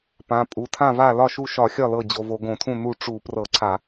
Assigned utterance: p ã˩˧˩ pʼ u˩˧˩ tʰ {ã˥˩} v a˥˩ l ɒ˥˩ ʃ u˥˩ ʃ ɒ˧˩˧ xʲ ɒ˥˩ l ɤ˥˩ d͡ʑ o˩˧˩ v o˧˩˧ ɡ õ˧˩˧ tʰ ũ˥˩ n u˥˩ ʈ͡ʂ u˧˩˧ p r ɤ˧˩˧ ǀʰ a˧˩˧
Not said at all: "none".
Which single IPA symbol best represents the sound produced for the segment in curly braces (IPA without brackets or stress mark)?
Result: ã˥˩